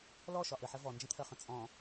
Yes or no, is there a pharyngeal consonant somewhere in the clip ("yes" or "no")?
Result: yes